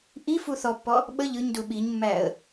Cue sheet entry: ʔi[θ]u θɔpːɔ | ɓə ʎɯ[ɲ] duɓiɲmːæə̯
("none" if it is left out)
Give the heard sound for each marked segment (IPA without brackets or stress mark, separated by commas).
f, ɲ